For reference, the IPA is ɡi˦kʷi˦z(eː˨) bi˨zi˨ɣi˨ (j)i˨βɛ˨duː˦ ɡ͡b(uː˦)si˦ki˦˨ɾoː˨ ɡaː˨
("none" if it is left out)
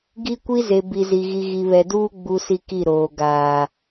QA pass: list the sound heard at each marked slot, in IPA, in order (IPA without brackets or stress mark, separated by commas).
e˨, ɣ, u˦